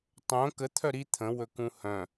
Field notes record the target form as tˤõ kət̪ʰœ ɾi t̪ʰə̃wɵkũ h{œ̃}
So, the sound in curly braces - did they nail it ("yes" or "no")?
yes